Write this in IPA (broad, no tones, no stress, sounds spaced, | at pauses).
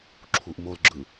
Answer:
ǁʰ u ʔ m o l ɡ͡ǁ ɯ